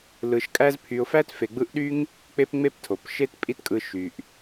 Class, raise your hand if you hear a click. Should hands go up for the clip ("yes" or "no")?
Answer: no